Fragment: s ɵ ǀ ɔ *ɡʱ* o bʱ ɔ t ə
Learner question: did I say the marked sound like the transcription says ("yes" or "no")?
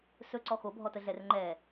no